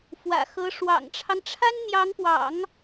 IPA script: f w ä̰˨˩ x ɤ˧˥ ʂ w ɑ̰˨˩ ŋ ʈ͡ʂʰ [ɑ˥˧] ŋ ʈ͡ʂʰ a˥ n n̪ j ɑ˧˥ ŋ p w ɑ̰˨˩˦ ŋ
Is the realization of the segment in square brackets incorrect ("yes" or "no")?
yes